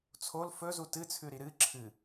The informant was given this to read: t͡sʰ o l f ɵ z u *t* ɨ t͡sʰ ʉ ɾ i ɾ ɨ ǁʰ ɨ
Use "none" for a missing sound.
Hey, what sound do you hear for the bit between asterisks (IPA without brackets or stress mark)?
t